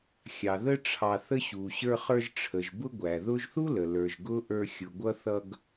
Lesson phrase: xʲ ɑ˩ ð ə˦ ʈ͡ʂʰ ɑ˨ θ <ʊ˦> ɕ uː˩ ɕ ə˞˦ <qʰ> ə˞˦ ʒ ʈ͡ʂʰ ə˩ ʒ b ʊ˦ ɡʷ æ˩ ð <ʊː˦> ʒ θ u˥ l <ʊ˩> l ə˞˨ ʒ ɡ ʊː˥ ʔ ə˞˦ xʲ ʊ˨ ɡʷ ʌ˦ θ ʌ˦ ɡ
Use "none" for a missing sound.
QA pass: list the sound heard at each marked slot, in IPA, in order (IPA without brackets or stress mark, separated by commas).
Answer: ə˦, χ, ʊː˦, ə˩